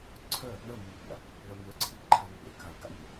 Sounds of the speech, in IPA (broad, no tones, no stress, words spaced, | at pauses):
ǀʰœ | ɳəmːəpʲa̰ | ɭəmʲœǀʰi ǃʰanːḛ kaə̯ɡa̰mʲe